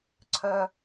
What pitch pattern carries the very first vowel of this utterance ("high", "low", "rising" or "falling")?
low